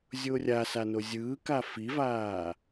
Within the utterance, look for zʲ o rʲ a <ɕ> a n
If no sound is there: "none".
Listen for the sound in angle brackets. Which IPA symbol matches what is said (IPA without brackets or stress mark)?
s